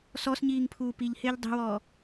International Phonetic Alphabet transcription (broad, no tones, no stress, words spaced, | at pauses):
sɔsɲiːŋpʰuː piʎhɪːʎ dˤi̤wɔː